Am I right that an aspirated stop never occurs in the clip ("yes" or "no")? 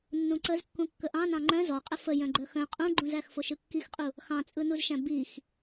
yes